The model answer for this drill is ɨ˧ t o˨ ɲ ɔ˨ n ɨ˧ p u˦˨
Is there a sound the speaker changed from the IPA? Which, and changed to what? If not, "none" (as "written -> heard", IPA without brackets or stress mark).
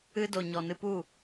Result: t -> d